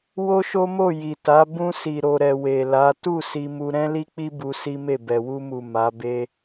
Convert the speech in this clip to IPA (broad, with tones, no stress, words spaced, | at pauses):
wo˦ʃo˦mo˦˨ ji˨ta˨˦ bũ˧ si˨ɾo˨ɾɛ˨ we˨la˨˦ tu˦˨ si˧mu˧ ɾɛ̃˦li˦k͡pi˦ bu˧si˦me˦˨ bɛ˨wu˧mu˨ ma˨˦be˦